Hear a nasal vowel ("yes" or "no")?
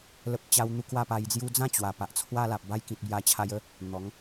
yes